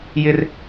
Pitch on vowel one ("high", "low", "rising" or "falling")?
high